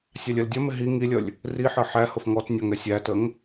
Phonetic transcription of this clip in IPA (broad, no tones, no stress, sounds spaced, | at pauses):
sʲ ɑ lʲ ɜ l dʲ ʌ m ɪ ɦ i ŋ i lʲ ʌ lʲ | r i ħ ɜ ħ æ h ʊ f ŋ ɔ t nʲ ɒ ŋ ɛ sʲ æ t ə ŋ